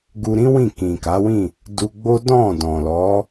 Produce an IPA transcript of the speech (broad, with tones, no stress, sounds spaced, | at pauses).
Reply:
ɡ u˧ ɾ ĩ˦ w ĩ˦˨ k ĩ˨ k a˨˦ w ĩ˦˨ | d u˧ ɡ͡b o˦ d ɔ̃˦˨ d ɔ̃˨ l ɔ˨˦